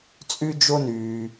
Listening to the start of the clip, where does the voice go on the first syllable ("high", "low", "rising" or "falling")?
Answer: high